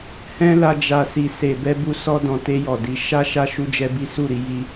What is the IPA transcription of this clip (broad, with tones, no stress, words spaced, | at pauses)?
hɛ̃˦la˧d͡ʒa˨si˨ se˨bɛ˧bu˧ sɔ˧dɔ̃˨te˧ jɔ˨di˨˦ ʃa˦ʃa˦ ʃu˦d͡ʒɛ˦bi˦ su˦˨ɾi˧ ji˦